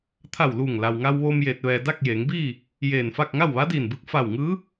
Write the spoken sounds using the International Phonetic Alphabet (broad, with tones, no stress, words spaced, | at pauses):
t̪ʰa˧˩w luː˧˩ŋ la˩wŋa˧wʋoː˧m jeː˧t̚ʋɛː˧ da˥˨k̚jeː˩˧ŋbiː˥˨ | jeː˧˩nfa˥˨k̚ ŋa˥˨wʋaː˧˥diː˧˩nbɯː˧k̚ fa˧˩wŋɯː˧˥